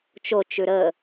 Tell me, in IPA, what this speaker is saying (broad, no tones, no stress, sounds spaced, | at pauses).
t͡ʃ o t͡ʃ ʉ ɾ ə